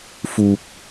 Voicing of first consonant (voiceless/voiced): voiceless